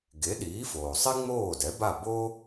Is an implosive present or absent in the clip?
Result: present